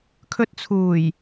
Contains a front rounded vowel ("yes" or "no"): no